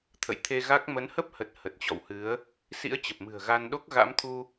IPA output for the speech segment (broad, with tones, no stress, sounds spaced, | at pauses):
t̪ʰ ə̰˧˨ j t̪ʰ e˧ ɣ a˦˥ k̚ m ə˨˦ n h ə˦˥ p̚ h ə˨˩ t̚ h ə˨˩ t̚ t͡ɕ ɔ̰˧˨ w h ɨ˨˦ ə̯ | s ḭ˧˥ ə̯ t͡ɕ ə˨˩ p̚ m ɨ̤˨˩ ə̯ ɣ a˧ n ɗ o˦˥ k̚ ɣ a̰˧˥ m t̪ʰ u˧